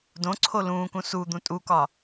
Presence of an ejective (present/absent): present